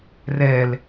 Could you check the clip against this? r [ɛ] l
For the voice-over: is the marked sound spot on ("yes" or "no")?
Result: yes